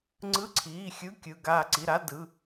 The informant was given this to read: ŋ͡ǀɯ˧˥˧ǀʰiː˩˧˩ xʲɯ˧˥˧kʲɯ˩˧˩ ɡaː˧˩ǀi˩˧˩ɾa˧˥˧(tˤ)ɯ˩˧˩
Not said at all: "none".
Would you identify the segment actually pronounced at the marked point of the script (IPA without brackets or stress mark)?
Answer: d